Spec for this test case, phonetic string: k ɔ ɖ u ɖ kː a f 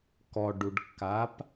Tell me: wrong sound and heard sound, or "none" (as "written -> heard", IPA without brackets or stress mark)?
f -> p